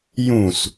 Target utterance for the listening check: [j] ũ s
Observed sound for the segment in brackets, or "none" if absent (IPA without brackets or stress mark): j